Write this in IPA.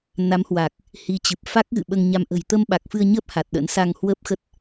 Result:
n a˨˦ m h w a˨˩ k̚ | h i˨˦ t͡ɕ ɨ˨˩ p̚ f a˦˥ k̚ ɣ ɨ̰˧˨ ɓ əː˧ ŋ ɲ a˧ m ʔ ə̤˨˩ j t̪ ə˧ m ɓ a˨˩ k̚ f ɨ˧ ə̯ ɲ əː˦˥ p̚ h a˨˩ t̚ ɗ ə̰˧˥ n s a˧ ŋ h w əː˦˥ p̚ x ə˦˥ t̚

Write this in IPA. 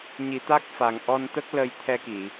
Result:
ɲ i˨˩˦ t̪ a˦˥ k̚ f a˨˩ ŋ ʔ ɔ˧ n t̪ ə˦˥ k̚ l ə˧ j t̪ʰ ɛ˧ k i˨˩˨

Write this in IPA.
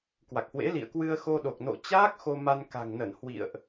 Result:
k w a˨˩ k̚ h w ḛ˧˥ l ḭ˧˨ ə̯ k w ɨ˧ ə̯ x o˧ ɗ o˨˩ k̚ n o̰˧˨ t͡ɕ aː˦˥ k̚ x o˧ m a˧ n k a̤˨˩ ŋ n ə˧˩ n h w ḭ˧˨ ə̯ ʔ

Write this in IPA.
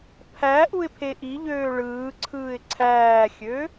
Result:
pʰ æ ʔ u ɪ̯ pʰ e ʔ i ʎ øː ɭ ɯː ǀʰ ɯː ɪ̯ ǀʰ æː xʲ ø

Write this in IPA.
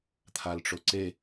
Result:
t̪ʰ a l ʈ͡ʂ o ǀ e

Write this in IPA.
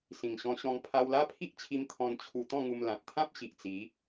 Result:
s ĩ˨˩ ŋ ɕ ɔ̃˧ ɕ ɔ̃˧ ŋ pʰ a˧ w l a˦ pʰ i˦ ʔ t͡ɕʰ i˧ m t̪ʰ ɔ̃˧ n t͡ɕʰ u˧ t̪ ɔ̃˥˧ ŋ u˧ m l ã˨ t̚ t̪ʰ ã˦ p̚ ɕ i˨ ʔ t͡s i˨˦

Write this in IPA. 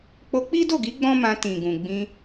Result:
k͡p o˧ k͡p i˦ d o˦˨ ɡ i˨˦ ɡ͡b ɔ̃˦ m ã˧ t ĩ˨ ɡ ũ˨ ɡ͡b ĩ˧

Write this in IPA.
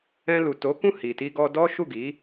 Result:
ɛ̃˧ l u˨ t o˨˦ k ũ˦˨ h i˨ t i˧ ɡ ɔ˧ d ɔ˦ ʃ u˦˨ ɡ i˨˦

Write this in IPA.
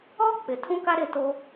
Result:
ɔ˦ k͡p ɪ˨ tʰ ũ˦ k a˦ ɾ ɪ˦˨ t o˦

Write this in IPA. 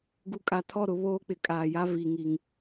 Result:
ɡ u˨ kʼ a˨ tʰ ɔ˦˨ ɾ ʊ˨ β oː˦ k͡p ɪ˨ kʼ aː˨ j a˦ v i˨ ŋ i˨ ŋ

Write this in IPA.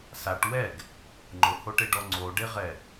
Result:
s a ʈ w ɛ ɡ | ŋ͡ǃ ʊ h o ʈ e ɖ ɔ ŋ͡ǀ o ɖ e ʁ ɛ

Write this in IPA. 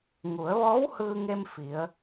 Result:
ŋ u˩˧ ə̯ ʋ ɔː˧˥ w h ɯː˧ ŋ e˧ m f i˩˧ ə̯

